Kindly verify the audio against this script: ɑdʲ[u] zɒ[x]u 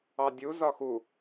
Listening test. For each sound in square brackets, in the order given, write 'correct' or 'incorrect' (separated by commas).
correct, correct